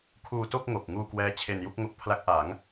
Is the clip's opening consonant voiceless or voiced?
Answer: voiceless